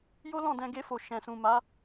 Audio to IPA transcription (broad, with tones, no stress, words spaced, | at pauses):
jo˦lɔ̃˦˨ dɛ̃˧ɡe˧fo˨ ʃɛ̃˨sũ˨ma˨˦